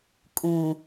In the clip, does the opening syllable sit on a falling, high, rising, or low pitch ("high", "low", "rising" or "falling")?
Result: low